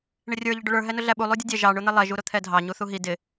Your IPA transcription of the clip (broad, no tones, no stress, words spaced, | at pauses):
ɳɪrʲə˞ ʎəɖʊɭə˞ ɦɛnʊɮæɓu lˠudʲʊdʲɛ ʒɑ ɳʊn̪ɪlˠɛ ʒuɾʊt̪ʰɛdʱɑ ɲuθuɦi dɪ